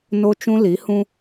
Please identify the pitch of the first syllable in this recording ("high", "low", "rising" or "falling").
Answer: high